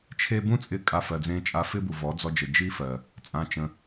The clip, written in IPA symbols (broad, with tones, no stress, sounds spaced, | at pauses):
t͡ʃʰ e˦ b ũ˦ t͡sʼ ɪ˧ kʼ a˧ f ɜ˨ d͡z ẽ˧ t͡ʃʼ a˧ f ɪ˦ b u˨ v ɔ˨˦ d͡z ɔ˧ d͡ʒ ə˨ d͡ʒ i˦ f ɜ˨ | t͡sʼ ã˧ t͡ʃ ə̃˧